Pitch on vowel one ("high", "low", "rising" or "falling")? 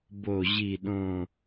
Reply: falling